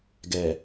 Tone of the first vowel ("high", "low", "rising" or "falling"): low